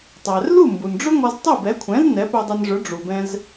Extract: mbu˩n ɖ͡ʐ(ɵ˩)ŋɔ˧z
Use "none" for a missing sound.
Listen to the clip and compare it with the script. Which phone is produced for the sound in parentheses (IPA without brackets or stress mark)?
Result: ɵ˥